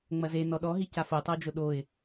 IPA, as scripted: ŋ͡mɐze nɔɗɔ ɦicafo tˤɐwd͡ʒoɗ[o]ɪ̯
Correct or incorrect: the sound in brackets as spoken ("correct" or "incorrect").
correct